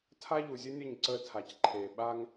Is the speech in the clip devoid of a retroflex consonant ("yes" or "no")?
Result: yes